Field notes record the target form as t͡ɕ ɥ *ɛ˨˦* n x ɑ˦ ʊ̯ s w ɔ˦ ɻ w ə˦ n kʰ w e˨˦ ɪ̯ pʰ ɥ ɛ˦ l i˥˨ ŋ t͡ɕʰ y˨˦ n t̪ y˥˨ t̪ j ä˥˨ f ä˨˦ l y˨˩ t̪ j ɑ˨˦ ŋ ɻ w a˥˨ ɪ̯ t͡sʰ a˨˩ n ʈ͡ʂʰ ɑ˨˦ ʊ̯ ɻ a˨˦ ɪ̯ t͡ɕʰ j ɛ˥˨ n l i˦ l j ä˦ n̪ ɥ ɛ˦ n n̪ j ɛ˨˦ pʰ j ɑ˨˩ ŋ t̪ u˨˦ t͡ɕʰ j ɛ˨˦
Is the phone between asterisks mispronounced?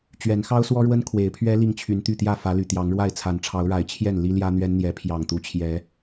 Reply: no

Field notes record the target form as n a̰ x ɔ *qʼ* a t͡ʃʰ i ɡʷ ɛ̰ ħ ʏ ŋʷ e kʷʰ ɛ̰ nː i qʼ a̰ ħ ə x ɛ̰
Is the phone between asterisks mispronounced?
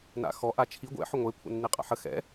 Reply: yes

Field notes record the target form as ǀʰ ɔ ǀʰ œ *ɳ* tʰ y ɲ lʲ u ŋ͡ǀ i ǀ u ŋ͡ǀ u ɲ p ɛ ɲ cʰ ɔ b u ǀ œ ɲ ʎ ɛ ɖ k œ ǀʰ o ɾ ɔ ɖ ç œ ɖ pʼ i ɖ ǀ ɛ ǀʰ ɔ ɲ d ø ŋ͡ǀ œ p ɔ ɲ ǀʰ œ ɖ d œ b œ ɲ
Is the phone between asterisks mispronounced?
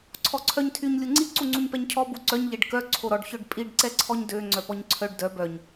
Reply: yes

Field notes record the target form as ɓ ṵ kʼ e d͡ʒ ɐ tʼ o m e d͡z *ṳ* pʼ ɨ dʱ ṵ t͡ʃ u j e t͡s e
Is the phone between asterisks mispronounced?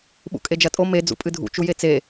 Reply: yes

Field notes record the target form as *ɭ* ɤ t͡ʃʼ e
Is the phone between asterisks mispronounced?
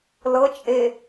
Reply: yes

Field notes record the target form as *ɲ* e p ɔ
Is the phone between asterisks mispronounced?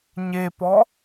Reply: no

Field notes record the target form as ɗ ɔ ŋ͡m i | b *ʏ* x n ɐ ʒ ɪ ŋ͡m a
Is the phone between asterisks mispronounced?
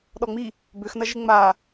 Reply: no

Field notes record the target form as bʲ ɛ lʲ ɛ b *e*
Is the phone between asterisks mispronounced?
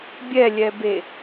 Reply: no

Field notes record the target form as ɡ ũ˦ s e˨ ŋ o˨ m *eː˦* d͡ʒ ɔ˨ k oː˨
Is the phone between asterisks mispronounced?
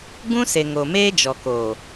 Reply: no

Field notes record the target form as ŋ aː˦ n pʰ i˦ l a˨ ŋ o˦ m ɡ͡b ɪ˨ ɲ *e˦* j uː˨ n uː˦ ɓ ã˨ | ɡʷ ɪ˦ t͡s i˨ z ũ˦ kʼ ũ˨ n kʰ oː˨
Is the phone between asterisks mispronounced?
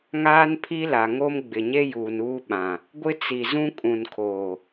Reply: no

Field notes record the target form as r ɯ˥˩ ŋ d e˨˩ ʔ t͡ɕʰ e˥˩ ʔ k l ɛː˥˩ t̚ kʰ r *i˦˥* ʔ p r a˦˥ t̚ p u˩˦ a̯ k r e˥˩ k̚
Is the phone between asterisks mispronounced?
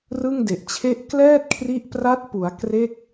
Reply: no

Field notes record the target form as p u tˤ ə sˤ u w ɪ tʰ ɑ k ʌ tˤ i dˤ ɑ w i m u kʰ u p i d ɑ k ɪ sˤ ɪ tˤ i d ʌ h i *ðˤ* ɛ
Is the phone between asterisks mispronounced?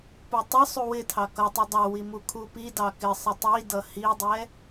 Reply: yes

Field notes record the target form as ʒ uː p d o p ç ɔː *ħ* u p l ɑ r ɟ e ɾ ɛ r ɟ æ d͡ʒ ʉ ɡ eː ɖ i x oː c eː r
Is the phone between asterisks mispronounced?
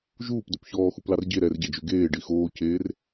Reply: yes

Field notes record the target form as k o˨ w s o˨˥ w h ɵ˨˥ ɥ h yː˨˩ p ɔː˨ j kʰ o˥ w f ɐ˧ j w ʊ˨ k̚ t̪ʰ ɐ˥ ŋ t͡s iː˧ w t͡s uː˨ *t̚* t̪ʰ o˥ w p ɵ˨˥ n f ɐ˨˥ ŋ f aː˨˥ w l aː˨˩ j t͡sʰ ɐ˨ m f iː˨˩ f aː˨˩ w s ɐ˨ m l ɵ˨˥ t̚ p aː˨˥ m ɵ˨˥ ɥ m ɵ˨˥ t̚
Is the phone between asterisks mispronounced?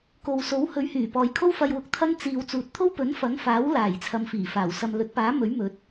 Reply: no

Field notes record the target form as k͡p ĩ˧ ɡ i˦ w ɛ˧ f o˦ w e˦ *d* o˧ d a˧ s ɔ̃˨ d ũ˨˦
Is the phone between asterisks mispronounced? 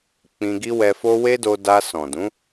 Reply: no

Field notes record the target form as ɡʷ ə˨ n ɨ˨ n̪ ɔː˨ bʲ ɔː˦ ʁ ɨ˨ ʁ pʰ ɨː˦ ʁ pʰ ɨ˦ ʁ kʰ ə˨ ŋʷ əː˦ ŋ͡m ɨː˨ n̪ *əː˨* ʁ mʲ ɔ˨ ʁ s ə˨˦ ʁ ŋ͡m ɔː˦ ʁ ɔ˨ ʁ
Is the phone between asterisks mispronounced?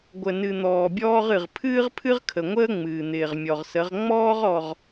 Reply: yes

